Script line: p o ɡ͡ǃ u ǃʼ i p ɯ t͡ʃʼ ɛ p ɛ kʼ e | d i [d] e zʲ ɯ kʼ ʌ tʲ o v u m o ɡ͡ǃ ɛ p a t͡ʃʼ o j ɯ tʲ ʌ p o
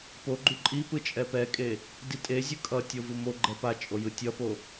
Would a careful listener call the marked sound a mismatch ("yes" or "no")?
yes